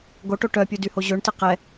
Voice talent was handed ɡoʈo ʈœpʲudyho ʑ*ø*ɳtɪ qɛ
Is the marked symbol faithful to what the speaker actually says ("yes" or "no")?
yes